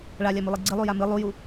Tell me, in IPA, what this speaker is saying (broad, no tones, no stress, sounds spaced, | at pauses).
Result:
ɭ a lʲ a m u lˠ i ɡ͡ǀ ɨ lˠ u j a m ɨ lˠ u j u